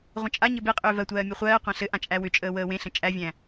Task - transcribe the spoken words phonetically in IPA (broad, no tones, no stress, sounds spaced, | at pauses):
ʁʷ ə̃ t͡ʃʼ a ɲ ɘ b e qʼ ʏː v ɜ tʷ ɜː mʲ e χʷ ɜː qʷ ã ɬ ɘ ʔ ã t͡ʃʼ æ w ʏ t͡ʃʼ əː w əː w ẽ ɬ ə̃ t͡ʃʼ æ vʲ æ̃